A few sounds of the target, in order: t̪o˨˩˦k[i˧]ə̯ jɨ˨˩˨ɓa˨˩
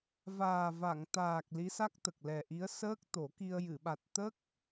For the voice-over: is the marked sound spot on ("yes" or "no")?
yes